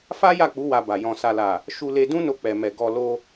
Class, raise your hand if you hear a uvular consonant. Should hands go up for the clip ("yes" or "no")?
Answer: no